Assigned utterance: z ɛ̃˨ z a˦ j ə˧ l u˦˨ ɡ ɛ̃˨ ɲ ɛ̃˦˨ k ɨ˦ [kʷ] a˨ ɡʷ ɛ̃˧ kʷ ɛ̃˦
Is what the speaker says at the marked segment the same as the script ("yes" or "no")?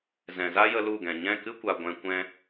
yes